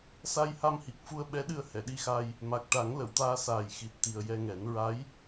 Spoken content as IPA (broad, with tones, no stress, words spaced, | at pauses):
sa˧jha˧mhi˨˩k̚fu˧ə̯ ɓɛ˧˥ɗɨ˧ə̯ hɛ˨˩˨ɗi˧xa˧j | ma˨˩k̚ʈa˨˩˦ŋ lə˨˩˨wt̪aː˧saː˨˩j xi˨˩t̚t̪i˨˩ə̯ jɛ˧ŋɛ˨˩˦n ɹa˧˥j